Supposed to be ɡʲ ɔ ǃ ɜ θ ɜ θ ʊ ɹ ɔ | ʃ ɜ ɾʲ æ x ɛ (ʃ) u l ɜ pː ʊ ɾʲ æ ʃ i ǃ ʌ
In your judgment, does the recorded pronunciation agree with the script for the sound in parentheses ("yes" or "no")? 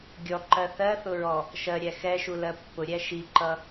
yes